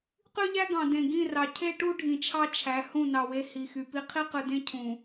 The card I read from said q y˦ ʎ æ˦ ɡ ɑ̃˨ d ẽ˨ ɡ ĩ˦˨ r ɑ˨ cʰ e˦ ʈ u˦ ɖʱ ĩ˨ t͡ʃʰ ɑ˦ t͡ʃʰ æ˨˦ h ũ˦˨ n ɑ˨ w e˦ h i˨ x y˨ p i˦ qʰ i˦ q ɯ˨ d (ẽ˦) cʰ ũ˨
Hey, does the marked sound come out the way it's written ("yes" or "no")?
yes